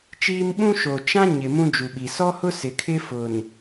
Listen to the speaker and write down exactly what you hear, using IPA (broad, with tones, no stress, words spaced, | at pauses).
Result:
t͡ʃiː˦m ɓũ˦ʃo˨ t͡ʃã˦ ɲɪ˨ mũ˦d͡ʒu˨ɓi˨ sɔ˦hʊ˦ sɪ˨kʰɪ˦ fʊ˨n